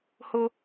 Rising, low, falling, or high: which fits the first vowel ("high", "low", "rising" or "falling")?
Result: high